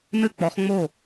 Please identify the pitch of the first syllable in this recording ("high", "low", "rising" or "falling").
falling